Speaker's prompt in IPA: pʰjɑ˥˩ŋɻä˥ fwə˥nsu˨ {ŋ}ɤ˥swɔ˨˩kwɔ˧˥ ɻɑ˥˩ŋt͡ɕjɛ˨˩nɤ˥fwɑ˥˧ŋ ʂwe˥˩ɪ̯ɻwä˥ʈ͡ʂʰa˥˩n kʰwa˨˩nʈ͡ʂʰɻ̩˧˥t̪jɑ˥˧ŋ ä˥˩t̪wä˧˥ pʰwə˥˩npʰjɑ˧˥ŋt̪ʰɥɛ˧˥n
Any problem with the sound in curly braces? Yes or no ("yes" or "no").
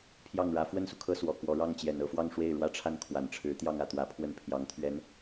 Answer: yes